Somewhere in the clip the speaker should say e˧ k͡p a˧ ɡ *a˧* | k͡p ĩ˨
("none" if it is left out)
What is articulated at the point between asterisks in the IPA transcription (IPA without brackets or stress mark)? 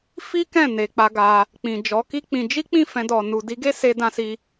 a˧